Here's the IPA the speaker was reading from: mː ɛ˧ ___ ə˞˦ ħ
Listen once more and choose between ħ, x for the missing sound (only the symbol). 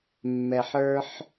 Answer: ħ